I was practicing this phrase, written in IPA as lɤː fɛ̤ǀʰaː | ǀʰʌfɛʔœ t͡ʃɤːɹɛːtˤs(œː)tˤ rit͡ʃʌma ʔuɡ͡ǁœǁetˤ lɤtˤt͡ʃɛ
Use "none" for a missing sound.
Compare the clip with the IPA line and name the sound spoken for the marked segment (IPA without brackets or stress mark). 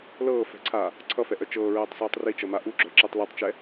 œː